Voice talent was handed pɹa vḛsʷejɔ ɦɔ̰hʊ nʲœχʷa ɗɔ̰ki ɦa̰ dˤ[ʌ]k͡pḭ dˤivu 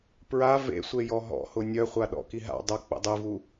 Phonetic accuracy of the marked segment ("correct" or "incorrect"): correct